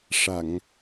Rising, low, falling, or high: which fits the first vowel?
low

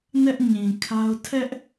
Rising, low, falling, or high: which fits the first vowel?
high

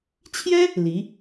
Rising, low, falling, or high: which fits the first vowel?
high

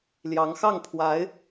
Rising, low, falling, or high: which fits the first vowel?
rising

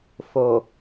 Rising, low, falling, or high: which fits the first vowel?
low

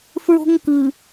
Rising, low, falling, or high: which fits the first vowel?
high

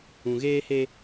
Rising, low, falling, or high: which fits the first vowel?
low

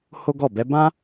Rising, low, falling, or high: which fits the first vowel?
high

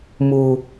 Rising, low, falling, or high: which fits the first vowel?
low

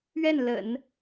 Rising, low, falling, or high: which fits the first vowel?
falling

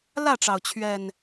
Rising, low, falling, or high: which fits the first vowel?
falling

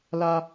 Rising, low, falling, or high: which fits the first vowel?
high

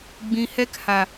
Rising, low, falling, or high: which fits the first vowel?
low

